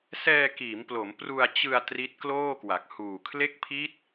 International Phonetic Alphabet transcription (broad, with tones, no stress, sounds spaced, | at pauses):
s ɛː˧ k iː˩˦ m p l o˩˦ m p r u˧ a̯ t͡ɕ ɯ˧ a̯ t r i˦˥ t̚ k l oː˥˩ k w a˨˩ k̚ h uː˨˩ kʰ l e˦˥ k̚ pʰ i˦˥ t̚